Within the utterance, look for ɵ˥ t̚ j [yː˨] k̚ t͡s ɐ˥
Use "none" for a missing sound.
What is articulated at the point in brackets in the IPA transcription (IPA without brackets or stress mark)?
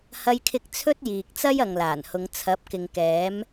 iː˨